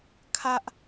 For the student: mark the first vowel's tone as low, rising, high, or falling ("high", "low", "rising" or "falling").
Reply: high